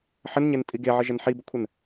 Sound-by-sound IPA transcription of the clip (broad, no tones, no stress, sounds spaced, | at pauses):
ħ ə n ɲ e n tʼ i ɡ e ʕ ə ʒ ə n ħ i b ʊ kʷʰ ə n